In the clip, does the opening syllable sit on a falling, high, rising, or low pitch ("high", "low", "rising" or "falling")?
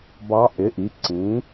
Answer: rising